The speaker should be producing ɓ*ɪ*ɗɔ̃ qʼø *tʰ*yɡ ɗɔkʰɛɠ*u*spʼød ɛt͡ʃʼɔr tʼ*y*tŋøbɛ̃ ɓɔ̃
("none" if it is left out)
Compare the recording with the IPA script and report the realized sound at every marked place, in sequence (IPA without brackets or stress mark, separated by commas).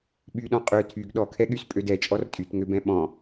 y, tʰ, y, y